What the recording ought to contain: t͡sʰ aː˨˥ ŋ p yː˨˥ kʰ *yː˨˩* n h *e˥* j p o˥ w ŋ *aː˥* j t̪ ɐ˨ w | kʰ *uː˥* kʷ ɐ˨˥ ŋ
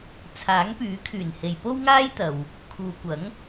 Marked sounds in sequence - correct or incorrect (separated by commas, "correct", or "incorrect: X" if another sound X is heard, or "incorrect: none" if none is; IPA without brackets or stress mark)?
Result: correct, incorrect: e˨, correct, incorrect: uː˨